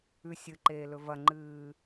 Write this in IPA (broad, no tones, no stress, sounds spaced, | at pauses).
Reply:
ʉ sʲ ɨ ǃ eː l ɵ v ɐ ŋ͡ǃ ɨː